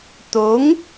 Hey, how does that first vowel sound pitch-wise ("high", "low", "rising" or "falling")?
rising